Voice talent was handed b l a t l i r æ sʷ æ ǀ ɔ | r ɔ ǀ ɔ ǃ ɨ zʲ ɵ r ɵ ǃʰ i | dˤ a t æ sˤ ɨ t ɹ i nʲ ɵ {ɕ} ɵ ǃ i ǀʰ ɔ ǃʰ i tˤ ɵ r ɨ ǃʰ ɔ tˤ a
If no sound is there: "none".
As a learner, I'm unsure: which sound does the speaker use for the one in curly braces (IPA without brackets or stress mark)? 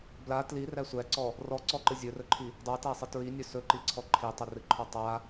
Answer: s